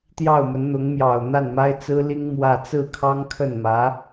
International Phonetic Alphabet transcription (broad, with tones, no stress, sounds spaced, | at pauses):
t̪ j ɑ˥˩ ʊ̯ m ə˧˥ n n̪ ʊ˧˥ ŋ m j ɑ˨˩ ʊ̯ n̪ a˥˩ n m a˥ ɪ̯ t͡s ɹ̩˥ l i˥ ŋ m w ä˥˧ t͡s ɹ̩˥˩ kʰ ɑ˥ ŋ kʰ ə˥˩ n m ä˧˥